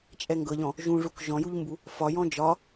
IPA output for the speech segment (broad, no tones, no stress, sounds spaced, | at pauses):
t͡ʃʼ ɛ ŋ ɡ ɤ ʎ ɔ̃ | ʒ ũ ʐ u k ʒ ɔ̃ j u ʎ m b u | f ɒ j ɔ̃ d͡ʒ ɒ